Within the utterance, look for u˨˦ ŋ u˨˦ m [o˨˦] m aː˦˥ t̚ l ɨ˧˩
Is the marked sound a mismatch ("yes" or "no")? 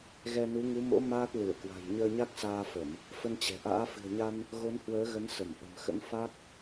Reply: yes